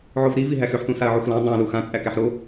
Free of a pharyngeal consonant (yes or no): no